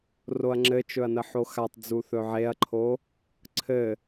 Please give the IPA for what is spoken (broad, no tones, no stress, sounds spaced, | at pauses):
r o ɐ̯ ŋ͡ǁ ɘ t͡ʃ ɵ ɐ̯ n ə ħ o x a tˤ d͡z u θ ɵ ʕ e ɐ̯ ǃʰ o | ǀʰ ɘ